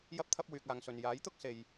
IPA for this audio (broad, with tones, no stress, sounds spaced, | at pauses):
j ɐ˧ p̚ t̪ʰ ɐ˧ p̚ w yː˨ k̚ aː˨ ŋ s ɵ˨ n j aː˨˥ j t̪ ʊ˥ k̚ s e˧ j